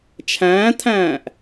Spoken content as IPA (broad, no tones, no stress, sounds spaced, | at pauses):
t͡ʃʰ æ̃ː t̪ʰ æ̃ː ʔ